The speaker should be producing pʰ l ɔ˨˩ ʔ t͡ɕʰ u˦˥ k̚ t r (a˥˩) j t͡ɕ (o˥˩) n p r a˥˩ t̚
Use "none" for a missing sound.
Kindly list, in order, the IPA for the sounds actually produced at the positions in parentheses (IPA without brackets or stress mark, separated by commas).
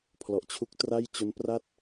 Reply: a˥˩, o˦˥